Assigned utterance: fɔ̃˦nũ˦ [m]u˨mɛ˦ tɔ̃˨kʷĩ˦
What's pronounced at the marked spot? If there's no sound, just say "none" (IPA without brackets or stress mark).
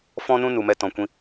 n